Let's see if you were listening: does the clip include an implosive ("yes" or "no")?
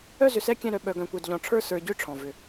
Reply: yes